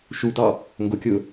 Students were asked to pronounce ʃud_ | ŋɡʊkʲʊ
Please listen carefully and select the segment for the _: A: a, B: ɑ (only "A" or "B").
B